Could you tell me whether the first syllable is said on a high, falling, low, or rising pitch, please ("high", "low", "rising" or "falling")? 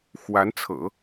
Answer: rising